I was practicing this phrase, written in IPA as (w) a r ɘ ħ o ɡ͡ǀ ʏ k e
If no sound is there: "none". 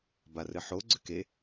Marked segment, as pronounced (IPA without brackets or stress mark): b